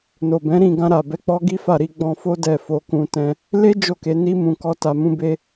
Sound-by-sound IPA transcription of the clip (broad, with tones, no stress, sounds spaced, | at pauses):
n o˨ b ɛ̃˨˦ ɾ ĩ˦˨ ɡ ã˧ ɾ a˨ b ɛ˨˦ k͡p ɔ˦ ɡ i˦ f a˦˨ ɾ i˧ ɡ͡b ɔ̃˧ f o˦ d ɛ˦˨ f o˧ k ũ˧ t ɛ̃˧ | l e˦ d͡ʒ o˦˨ k e˨˦ n i˧ m ũ˨ k ɔ˧ t a˨ m ũ˧ b e˧